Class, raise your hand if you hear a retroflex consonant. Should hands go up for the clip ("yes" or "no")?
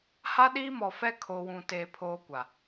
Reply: no